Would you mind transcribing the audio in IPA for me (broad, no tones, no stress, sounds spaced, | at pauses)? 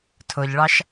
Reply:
tʰ ʊ ʎ ɭ ɑ ʃ